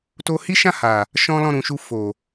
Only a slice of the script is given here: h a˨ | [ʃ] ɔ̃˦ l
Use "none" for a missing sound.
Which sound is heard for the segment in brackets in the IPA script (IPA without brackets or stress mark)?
ʃ